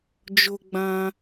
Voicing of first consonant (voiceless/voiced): voiced